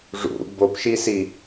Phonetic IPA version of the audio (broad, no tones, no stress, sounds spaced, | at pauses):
ʐ ṵ b o p ʃ i s i